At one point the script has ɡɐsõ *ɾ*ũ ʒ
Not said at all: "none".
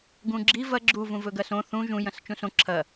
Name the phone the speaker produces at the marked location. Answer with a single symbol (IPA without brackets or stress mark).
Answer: θ